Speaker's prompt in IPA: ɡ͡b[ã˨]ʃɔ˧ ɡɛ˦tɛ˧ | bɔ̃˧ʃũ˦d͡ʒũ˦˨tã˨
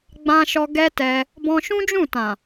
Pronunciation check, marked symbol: incorrect: ã˧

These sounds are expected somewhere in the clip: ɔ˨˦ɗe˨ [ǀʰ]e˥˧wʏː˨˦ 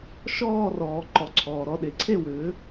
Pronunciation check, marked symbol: correct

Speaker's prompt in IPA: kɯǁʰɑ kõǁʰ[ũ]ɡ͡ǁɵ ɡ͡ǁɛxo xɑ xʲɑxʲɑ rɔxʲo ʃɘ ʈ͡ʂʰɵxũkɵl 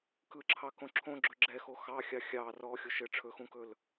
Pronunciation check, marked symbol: incorrect: õ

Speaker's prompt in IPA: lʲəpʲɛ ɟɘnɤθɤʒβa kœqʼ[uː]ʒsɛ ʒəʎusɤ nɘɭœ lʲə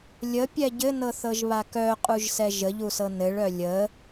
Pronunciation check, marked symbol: incorrect: u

